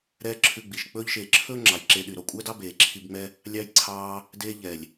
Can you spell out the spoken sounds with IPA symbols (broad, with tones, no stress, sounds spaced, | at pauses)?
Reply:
ɾ ɛː˦ ǁʰ ʉ˧ ɡ͡b i˨ ʃ k͡p ɵː˦ ʎ ʃ eː˨ ǁʰ ɵː˦ ŋ͡ǁ ɑ˨ j ǁ eː˧ ɗ y˨ ɾ ɔ˧ kʷʼ æ˦ d ɑ˦ b eː˨ ǁʰ i˧ b ŋ͡m ɛ˦ | lʲ ɑ˦ j ǀʰ ɑː˦ | d eː˧ ʎ ɛ˨ lʲ